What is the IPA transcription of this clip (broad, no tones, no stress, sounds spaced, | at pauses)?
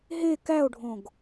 ɦ e k æ o̯ ɖʱ õ ɡ